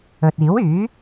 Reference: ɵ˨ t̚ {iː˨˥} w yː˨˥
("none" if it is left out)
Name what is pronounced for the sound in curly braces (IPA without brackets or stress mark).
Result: iː˨˥